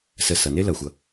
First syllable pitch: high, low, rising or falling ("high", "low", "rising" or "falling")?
low